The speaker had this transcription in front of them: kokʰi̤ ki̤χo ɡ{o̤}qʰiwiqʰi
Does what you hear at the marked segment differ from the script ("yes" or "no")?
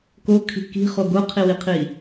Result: yes